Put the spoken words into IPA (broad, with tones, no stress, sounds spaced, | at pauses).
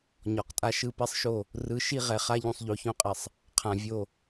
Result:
ɲ ɔ˨ q tʼ a˦ ʃ ɯ˦˨ p ɛ˦ sˤ ʃ o˦˨ | r ɯ˨˦ ʃ i˦˨ ʁ ɛ˨ χ a˦ ʎ ũ˨ sˤ ʎ o˨ ç õ˦ qʼ ɛ˨ sˤ | qʰ ã˨ vʲ o˦˨